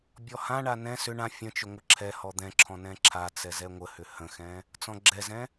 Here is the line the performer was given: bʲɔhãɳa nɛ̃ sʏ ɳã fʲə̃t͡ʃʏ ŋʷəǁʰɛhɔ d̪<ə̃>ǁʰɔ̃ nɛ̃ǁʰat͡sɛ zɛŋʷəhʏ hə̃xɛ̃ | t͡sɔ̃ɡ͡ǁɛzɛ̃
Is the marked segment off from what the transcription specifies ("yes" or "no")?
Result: yes